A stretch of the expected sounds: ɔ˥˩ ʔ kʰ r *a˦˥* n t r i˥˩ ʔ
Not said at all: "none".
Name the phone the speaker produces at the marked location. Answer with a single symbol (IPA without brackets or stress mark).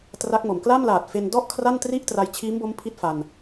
a˥˩